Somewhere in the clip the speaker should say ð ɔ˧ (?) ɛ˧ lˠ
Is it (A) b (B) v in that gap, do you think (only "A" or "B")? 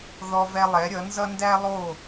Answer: B